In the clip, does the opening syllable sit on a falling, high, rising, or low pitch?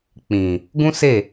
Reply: low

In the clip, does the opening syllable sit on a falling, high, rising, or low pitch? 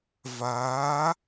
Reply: rising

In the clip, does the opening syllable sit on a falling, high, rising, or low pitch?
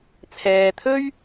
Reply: low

